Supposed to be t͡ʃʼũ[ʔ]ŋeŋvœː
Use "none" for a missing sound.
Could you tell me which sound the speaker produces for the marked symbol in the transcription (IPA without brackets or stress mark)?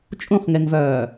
χ